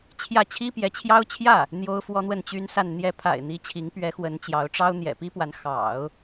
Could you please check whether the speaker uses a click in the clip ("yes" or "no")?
no